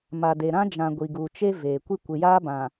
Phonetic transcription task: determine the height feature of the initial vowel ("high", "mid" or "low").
low